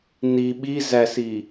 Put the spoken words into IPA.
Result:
n i ɓ i z æ s i

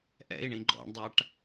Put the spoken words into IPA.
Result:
ʔ ɛ̰ i̯ ɳ ĩ ɡ͡ǃ ɔ̰ ɳ dˤ a ʈ

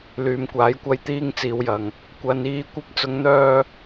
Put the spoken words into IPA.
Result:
l yː˨ m kʷ aː˨˥ j kʷ ɐ˧ j t̪ iː˧ ŋ t͡s iː˨˧ w j ɐ˨ ŋ | kʷ ɐ˨˧ n iː˧ kʷ ɐ˧ p̚ t͡s ʊ˨˧ ŋ n̪ œː˧

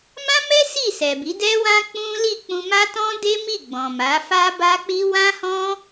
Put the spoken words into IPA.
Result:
m ã˦ m ɛ˦ s i˦˨ s ɛ˨ b i˨˦ d ɛ˦ w ã˦ k͡p ũ˦ l i˦˨ k͡p ũ˧ m a˦ t ɔ̃˦ d e˦ m i˦˨ ɡ͡b ɔ̃˨ m a˨˦ f a˦ b a˦ k͡p i˦ w ã˦ h ɔ̃˦

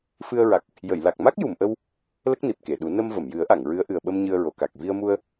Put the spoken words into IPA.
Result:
f ɨ˧ ə̯ ɹ a˨˩ k̚ | j ə˨˩˨ j l a˨˩ k̚ m a˦˥ k̚ j u˨˩˨ m ʔ ə˧ w | l ə˦˥ k̚ n i˨˩ p̚ k e˨˩˨ ɗ u˨˩˦ n ə˧ m v ə˨˩˨ m j ɨ˨˩˦ ə̯ ʔ a˨˩˨ ŋ ɹ ɨ˧˥ ə̯ ʔ ɨ˨˩ ə̯ ɓ ə˧ m ɲ ɨ˧ ə̯ ɹ o˨˩˨ k a˨˩ k̚ v i˧ ə̯ m u˧ ə̯

